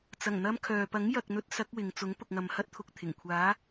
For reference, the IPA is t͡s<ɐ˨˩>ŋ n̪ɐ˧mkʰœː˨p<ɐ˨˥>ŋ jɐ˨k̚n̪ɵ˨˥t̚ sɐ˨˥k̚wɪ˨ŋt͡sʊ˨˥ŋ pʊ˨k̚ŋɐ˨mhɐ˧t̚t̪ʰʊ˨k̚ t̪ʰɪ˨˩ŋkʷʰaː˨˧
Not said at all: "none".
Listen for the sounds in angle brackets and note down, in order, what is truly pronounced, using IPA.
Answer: ɐ˨˩, ɐ˨˥

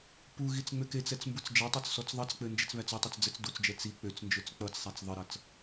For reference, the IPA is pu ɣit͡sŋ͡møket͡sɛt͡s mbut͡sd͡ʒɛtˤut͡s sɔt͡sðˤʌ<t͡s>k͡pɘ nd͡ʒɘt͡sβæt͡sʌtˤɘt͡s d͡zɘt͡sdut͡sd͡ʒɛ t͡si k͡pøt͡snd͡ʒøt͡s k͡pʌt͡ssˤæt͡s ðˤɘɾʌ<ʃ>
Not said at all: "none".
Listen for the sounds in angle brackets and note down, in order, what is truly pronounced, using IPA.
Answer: t͡s, t͡s

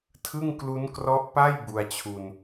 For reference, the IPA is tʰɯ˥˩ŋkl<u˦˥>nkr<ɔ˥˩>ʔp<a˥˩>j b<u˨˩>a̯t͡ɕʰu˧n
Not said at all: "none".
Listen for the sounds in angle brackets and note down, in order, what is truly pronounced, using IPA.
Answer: u˦˥, ɔ˦˥, a˥˩, u˧

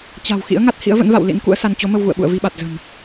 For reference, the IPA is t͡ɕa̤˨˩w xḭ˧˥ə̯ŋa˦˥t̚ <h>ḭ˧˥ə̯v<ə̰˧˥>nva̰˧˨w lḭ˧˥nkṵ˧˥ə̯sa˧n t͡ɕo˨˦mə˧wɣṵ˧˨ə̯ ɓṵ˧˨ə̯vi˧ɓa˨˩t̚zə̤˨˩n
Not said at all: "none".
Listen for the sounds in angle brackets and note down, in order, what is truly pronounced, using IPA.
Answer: h, ə̰˧˥

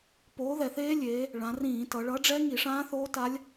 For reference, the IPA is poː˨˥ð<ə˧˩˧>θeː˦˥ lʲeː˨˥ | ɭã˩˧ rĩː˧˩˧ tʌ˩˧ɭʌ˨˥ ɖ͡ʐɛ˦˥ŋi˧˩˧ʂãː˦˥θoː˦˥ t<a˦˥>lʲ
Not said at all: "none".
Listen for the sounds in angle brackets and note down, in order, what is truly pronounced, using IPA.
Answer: ɛ˧˩˧, a˦˥

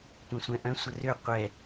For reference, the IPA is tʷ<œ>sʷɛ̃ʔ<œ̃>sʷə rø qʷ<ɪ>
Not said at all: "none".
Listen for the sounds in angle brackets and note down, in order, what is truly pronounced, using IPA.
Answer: œ̃, œ̃, ɛ

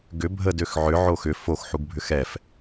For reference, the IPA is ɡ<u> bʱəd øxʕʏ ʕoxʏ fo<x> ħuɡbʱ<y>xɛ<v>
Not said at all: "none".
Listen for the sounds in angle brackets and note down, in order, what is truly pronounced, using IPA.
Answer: ʏ, x, ʏ, f

